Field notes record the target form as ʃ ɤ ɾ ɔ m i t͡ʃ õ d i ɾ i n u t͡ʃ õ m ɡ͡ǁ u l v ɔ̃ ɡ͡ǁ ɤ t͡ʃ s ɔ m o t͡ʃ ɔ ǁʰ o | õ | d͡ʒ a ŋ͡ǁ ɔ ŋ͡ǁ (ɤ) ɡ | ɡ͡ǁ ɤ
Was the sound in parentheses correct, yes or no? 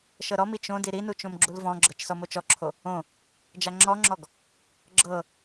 no